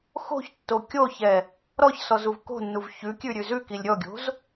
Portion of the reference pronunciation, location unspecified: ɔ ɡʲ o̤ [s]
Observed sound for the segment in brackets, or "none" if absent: z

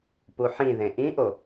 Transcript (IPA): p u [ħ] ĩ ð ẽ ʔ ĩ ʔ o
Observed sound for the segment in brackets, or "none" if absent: ħ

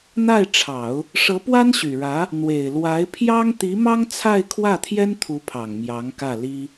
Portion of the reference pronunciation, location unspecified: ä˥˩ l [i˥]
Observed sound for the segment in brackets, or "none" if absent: i˥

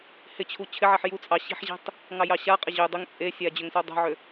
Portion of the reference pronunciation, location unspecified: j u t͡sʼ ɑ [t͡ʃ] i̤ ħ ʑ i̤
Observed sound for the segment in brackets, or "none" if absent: ɕ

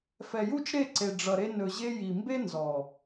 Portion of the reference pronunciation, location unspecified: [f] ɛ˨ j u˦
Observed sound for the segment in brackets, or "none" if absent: f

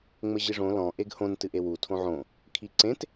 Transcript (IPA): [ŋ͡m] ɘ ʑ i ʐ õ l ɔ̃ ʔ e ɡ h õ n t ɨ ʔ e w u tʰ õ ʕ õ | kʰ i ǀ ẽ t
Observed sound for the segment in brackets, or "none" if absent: ŋ͡m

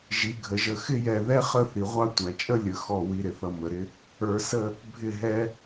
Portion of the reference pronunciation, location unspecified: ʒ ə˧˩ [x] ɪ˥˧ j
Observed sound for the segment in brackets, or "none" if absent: x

